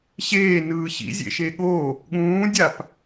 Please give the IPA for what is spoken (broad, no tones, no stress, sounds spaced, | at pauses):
ɕ eː n ɯː ɕ ḭ zʲ ḛ ʃ e ɠ o | ɠ ũː dʲ a p